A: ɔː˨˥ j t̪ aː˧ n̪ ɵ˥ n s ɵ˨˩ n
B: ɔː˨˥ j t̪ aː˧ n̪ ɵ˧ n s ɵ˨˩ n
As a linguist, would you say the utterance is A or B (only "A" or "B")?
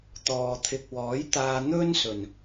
A